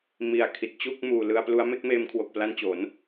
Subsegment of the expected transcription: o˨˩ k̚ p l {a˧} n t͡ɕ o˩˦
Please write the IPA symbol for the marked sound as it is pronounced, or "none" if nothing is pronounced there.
a˧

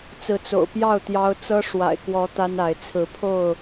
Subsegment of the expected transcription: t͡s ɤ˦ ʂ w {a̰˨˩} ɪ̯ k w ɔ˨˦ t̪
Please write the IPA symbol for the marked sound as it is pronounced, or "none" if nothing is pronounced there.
a̰˨˩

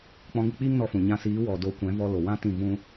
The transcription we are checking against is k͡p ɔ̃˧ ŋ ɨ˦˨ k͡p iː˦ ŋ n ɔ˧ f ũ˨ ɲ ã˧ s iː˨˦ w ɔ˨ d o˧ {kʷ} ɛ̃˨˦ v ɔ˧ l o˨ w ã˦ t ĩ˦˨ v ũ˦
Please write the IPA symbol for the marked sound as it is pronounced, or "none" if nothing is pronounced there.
kʷ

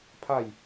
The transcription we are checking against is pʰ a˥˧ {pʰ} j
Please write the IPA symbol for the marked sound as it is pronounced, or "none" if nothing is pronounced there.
none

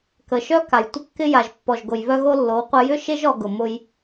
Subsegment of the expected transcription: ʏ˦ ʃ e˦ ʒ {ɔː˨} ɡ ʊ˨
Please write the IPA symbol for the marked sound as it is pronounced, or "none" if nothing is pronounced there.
ɔ˨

